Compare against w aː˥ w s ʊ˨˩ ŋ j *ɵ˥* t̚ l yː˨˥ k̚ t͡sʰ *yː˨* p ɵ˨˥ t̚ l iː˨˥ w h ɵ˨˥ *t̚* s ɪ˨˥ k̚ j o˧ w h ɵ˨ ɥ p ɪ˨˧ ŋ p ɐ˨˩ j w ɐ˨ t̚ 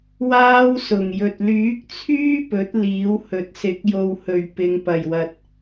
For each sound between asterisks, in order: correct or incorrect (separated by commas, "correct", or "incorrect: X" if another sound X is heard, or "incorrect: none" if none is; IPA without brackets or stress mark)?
incorrect: ɵ˨, incorrect: yː˥, correct